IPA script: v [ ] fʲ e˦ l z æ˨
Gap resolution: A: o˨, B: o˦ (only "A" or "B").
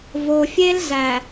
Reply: A